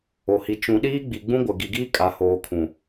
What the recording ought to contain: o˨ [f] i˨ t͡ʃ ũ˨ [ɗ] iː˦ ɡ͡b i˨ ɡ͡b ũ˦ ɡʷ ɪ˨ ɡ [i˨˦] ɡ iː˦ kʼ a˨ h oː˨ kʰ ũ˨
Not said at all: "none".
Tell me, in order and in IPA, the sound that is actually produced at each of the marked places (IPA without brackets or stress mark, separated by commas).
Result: h, ɗ, i˨